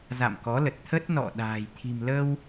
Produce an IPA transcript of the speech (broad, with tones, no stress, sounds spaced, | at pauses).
z a̰˧˨ m k ɔ˨˦ l ə˨˩ t̚ t̪ʰ ə˦˥ t̚ n ɔ̰˧˨ ɗ a̤ː˨˩ j t̪ʰ i̤˨˩ m l ə˧ w